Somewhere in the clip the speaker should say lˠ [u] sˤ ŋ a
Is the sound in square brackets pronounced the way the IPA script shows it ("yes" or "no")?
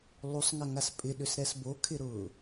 yes